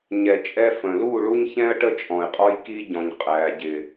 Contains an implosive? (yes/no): no